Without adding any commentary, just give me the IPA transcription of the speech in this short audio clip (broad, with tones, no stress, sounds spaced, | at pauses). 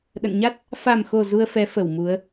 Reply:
ɗ ə̰˧˨ n ɲ a˦˥ t̚ | f a˨˩ m x o˨˩ z u˧ ə̯ f ɛ˨˦ f ə˧˩ w m u˨˦ ə̯